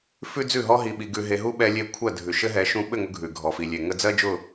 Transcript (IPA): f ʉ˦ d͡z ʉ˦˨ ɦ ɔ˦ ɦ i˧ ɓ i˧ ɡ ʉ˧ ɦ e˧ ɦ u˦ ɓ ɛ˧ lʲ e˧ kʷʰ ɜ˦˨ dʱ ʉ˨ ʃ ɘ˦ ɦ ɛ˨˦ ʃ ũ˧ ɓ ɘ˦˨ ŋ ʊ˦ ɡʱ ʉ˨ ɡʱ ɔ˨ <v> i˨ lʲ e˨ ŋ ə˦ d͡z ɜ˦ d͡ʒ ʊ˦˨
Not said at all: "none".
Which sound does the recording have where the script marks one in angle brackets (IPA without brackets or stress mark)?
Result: f